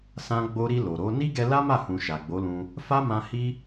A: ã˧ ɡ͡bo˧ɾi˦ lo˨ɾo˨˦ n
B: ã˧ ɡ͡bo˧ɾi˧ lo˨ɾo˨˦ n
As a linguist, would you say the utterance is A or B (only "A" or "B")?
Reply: B